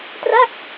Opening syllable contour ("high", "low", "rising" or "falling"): falling